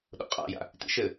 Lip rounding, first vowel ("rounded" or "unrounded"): rounded